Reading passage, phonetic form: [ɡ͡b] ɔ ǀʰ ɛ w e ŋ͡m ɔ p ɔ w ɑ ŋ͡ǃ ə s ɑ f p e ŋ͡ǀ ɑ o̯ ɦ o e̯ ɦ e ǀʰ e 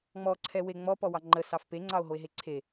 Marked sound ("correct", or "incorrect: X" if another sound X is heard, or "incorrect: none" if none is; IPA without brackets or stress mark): incorrect: ŋ͡m